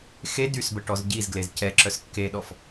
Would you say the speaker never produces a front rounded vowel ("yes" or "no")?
no